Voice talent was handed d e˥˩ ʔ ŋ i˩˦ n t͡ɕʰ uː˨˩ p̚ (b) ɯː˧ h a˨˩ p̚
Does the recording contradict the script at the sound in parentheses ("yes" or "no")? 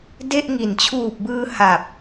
no